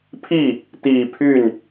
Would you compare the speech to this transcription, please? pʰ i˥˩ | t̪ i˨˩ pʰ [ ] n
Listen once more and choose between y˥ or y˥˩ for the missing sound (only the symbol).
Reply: y˥˩